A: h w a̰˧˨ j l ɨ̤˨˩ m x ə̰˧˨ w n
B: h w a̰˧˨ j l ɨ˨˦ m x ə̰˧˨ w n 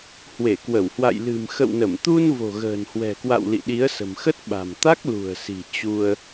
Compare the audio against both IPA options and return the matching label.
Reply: A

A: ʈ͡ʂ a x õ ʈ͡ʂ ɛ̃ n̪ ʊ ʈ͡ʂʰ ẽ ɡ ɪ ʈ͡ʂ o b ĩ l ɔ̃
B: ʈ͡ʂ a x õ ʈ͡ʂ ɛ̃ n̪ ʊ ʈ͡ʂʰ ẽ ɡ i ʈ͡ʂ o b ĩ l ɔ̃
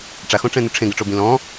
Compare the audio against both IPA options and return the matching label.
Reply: A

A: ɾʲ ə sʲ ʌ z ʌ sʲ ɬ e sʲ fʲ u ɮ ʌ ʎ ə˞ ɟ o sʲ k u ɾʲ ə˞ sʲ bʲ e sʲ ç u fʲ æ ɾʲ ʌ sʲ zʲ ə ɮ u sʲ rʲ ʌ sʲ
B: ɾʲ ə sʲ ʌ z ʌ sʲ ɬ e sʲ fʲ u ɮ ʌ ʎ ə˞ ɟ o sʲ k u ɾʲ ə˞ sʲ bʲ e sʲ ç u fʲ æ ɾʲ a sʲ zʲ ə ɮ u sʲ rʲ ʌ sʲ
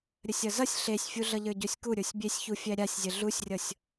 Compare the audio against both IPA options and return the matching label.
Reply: B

